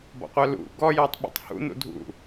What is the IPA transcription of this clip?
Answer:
b ɔ̰ qʷ œ l ṵ ɡ ɔ j ɔ tˤ ɓ ɔ̰ tˤ h ṵ n ṵ dʱ ṵ

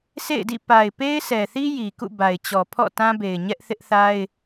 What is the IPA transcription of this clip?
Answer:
s ḛ˦˨ ɪ̯ d ḭ˦˨ p a˨ ɪ̯ p e˦ ɪ̯ s ɛ˨ θ i˦ j i˨ k ṵ˦˨ b a˨ ɪ̯ t͡ɕ ɔ˨ pʰ ɔ̰˦˨ t ã˦ b e˨ ɪ̯ ɲ ɛ˦ ʔ θ ɪ˦ ʔ θ a˦ ɪ̯

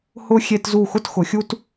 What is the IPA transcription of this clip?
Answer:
h ʊ˧ xʲ e˧ t z u˧˩ x ʊ˥˧ t x ʊ˩˧ xʲ u˥ t

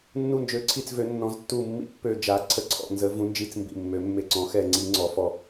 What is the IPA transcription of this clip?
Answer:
nː u˧˩ n d͡ʒ ø˨˩˦ ǀʰ i˧˩ t͡s v ø˨˩˦ nː ɔ̃˨˩˦ z tː u˧˩ mː ḭ˧˩ pː ø˧˩ d͡ʒ a˨˩˦ ǀʰ ə˧˩ ǀʰ ɔ̰˧˩ n z ə˨˩˦ v ũ˨˩˦ n d͡ʒ i˧˩ t͡s m b ḭ˧˩ mː ø˨˩˦ mː e˧˩ ǀ ɔ̃˨˩˦ x ɛ˧˩ ŋ͡ǀ i˨˩˦ ŋ͡ǀ ɔ˨˩˦ f ɔ˧˩

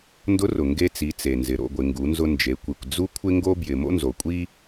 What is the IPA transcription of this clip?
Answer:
n d ʊ˧˥ r ʊ˩ ŋ ɡ e˧ t͡s i˩˧ t͡s e˩ n z ɪ˩˧ ɾ o̰˩˧ ɡʷ ɪ˩˧ ŋ ɡ u˩˧ n z ʊ˧ n d͡ʒ e˩˧ kʷ i˩ kʷ d͡z u˥ kʷʰ ɪ˥ ŋ ɡ o˥ b j ɪ˩ m o̰˥ n z o˩ kʷʼ i˥

